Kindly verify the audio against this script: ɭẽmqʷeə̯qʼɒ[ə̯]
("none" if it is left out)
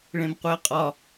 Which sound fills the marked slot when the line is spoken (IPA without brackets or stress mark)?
none